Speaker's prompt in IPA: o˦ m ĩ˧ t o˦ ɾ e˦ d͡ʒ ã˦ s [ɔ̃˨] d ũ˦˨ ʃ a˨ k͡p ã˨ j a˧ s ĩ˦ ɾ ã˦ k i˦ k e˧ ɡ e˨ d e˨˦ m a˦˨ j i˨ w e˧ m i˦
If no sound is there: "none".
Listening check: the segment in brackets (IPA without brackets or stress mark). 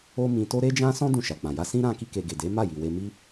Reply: ɔ̃˦